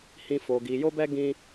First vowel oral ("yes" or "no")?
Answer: no